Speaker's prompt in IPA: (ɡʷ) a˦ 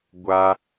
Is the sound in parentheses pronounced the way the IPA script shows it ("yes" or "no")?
yes